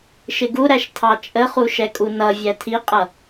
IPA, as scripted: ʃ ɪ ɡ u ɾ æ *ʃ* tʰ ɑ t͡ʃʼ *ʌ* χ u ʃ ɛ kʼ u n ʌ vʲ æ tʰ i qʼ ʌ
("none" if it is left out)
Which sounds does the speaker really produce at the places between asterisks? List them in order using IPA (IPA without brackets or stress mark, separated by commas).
ʃ, ə